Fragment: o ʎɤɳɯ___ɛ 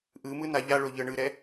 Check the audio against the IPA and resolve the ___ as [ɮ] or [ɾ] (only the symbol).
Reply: ɾ